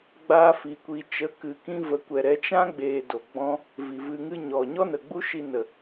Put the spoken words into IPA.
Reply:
ɡ͡b aː˦ f i˧ kʷ i˧ t͡ʃ ə˨˦ k ɨ˨ k ĩ˧ v ə˨˦ kʷ ɛ˨ ɾ ɛ˨˦ t͡ʃ ã˦ ɡ͡b eː˨ d o˨ ɡ͡b ɔ̃˦ | v i˨ v ɨ˧ ŋ ɨ˦ ɲ ɔ˨ ɲ ɔ˦ n ə˨ ɡ͡b u˦ ʃ i˧ n ə˨

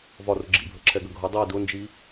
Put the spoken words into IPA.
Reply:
v ɒ r ʊ ɡ͡ǁ ḭ bʱ ə ǁʰ ɛ ɡ ə ɡʱ ʊ dˤ i d ʊ n d͡ʒ i

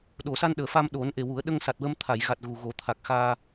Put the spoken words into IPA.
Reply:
ɗ o˨˩˨ s a˧ n ɗ əː˨˩ f a˧ m ɗ o˨˩˦ n ʔ e˨˩ w u˨˩˦ ə̯ ɗ ə˧ ŋ s a˨˩ t̚ w ə˧ m t̪ʰ a˨˩˨ j ɣ a˨˩ t̚ ɣ u˨˩ ɣ o˨˩˦ t̪ʰ a˨˩ k̚ x aː˧

